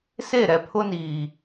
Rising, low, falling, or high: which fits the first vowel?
falling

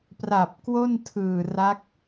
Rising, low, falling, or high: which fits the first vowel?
low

